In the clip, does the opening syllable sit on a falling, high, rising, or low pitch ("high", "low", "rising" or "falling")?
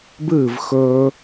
falling